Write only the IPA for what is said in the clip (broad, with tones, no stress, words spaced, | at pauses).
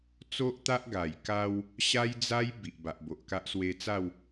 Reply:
t͡so˦ʔt̪a˦ʔ ɡa˨˩jka˦w | ɕa˦jd͡za˦j bi˨ʔba˨ʔbo˨ʔka˦ʔ swe˧t͡sa˥˧w